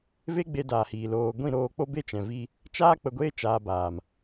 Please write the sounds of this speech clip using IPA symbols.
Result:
v e˦ ɡ͡b e˧ d aː˨ h iː˨ l oː˨ ɡʷ ĩ˦˨ ɾ oː˧ k͡p o˦ b e˦ t͡ʃ ɛ̃˨ v i˧ | t͡ʃ aː˦ k͡p ə˧ ɡʷ eː˦ t͡ʃ aː˨ b aː˨ m

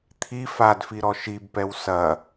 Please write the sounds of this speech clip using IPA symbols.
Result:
t̪ʰ i f a d f i ɾ ɔ ʃ i b p ɛ w s ɐ

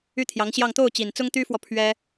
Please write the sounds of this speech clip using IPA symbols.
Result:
y˥˩ t̪ʰ j ɑ˧˥ ŋ ɕ j ɑ˥˧ ŋ t̪ o˥˩ ʊ̯ t͡ɕ i˨˩ n t͡s ʊ˥ ŋ t̪ y˥ f w ɔ˨ pʰ ɥ ɛ˥

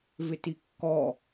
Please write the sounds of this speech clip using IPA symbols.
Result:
v ɪ t i kː ɔ

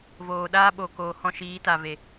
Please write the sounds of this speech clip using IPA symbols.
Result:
v oː˨ ɗ aː˦ ɓ o˨ k oː˨ h ɔ̃˧ ʃ iː˨˦ t a˨ v e˨

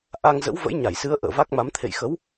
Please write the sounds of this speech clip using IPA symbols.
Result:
ʔ a˧ ŋ z ə̰˧˥ w v ə̰˧˥ j ɲ a˧˩ j s ɨ˨˦ ə̯ ʔ ə̰ː˧˨ v a˦˥ k̚ m a˨˦ m t̪ʰ ḛ˧˨ j x ə˨˦ w

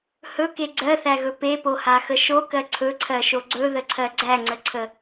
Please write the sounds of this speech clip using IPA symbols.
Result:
h ɵ k e ɡ͡ǀ ɜ θ æ ɣ ɵ p e p o h a x ə ʃ o k ɜ ǀʰ ɵ ǀʰ ɜ ʃ o ɡ͡ǀ ɵ ð ə ǀʰ ɜ ɡ͡ǀ æ ŋ͡ǀ ə ǀʰ ə

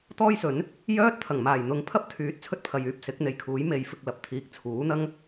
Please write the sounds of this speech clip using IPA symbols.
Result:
t̪ ɔː˥ j s ɵ˨˥ n | j œː˥ t̚ t̪ʰ ɐ˨˩ ŋ m aː˨˩ j n̪ ʊ˧ ŋ pʰ ɐ˥ p̚ t̪ʰ yː˨˥ t̚ t͡sʰ ɵ˧ t̚ pʰ ɐ˨ j yː˨ p̚ s ɪ˨˥ k̚ n̪ e˨ j kʰ uː˨˥ j m e˨˧ j f ɪ˧ k̚ l ɐ˨ p̚ t̪ʰ iː˨ k̚ t͡sʰ uː˨˥ n̪ ɐ˥ ŋ

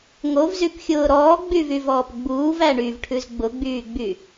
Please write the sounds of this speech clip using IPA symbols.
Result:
ŋ o v z y p xʲ ʊː ɾ ɔː ɡ͡b y v y v ɔː p ɡ͡b uː v æ ɳ y v ʈʰ ʉ z ɡ͡b ʊ ɡ͡b yː ɡ͡b y

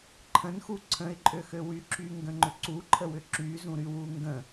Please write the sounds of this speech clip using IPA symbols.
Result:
ǃʰ ə̃ n x u ǀʰ ə̃ ɪ̯ ǃʼ ø x ø w y ǁ y ŋ ɡ ə̃ ŋ͡ǃ ʏ ǀ u ǃʰ ə w ʏ ǁ y z ũ ɾ y w u ŋ ɡ ə̃

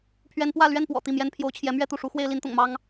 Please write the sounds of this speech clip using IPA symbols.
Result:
pʰ ɥ ɛ˥ n p w ä˥˧ l ɥ ɛ˥˩ n p w ɔ̰˨˩ t̪ i˥˩ m j ɛ˥ n pʰ j o˧˥ ʊ̯ t͡ɕʰ j ɛ˧˥ m ɥ ɛ˥˧ t̪ u˥˩ ʂ u˧˥ x w e˥ ɪ̯ l i˧˥ n t̪ ʊ̰˨˩ ŋ m ɑ˥ ŋ

